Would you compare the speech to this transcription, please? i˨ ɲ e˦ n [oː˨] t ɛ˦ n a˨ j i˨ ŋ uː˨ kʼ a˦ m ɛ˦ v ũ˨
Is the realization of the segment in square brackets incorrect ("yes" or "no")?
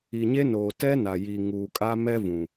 no